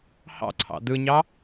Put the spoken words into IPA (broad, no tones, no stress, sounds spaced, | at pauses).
h ɑ̰ ǀʰ ɑ̰ d ɯ ɲ ɑ